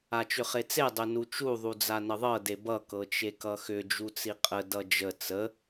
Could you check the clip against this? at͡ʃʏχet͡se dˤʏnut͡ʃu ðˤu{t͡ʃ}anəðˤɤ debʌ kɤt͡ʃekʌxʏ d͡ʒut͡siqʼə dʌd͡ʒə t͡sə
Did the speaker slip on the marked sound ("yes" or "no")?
yes